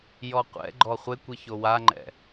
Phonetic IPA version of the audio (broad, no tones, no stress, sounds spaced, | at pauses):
j ɔ qʷ ɛ̰ ɡ͡ǃ ɔ χʷ ɪ kʷ i ç o w a ŋ͡ǃ ɛ̰